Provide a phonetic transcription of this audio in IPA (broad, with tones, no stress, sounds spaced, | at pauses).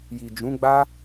j i˨ d͡ʒ ũ˨˦ ɡ͡b a˦